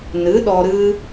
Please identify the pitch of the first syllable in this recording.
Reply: rising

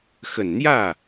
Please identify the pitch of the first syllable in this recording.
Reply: low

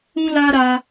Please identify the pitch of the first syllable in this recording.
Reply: high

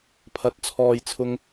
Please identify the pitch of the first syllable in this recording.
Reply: rising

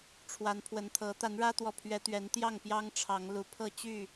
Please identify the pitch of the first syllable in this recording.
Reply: rising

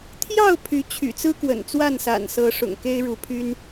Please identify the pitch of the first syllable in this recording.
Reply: falling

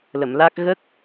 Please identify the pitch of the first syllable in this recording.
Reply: low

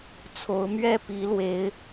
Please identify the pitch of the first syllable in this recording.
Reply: rising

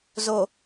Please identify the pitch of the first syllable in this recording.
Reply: low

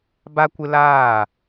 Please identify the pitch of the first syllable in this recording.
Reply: high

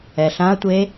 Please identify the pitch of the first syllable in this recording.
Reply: low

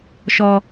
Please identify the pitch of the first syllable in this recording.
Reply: high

